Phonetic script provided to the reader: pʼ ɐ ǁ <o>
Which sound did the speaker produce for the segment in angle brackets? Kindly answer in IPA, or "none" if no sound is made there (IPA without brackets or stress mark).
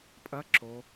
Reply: o